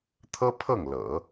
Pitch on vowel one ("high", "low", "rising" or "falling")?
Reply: high